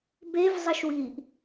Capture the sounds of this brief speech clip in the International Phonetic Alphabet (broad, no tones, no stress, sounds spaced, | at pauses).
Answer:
b e v zˤ ʌ ʃ w iː ʔ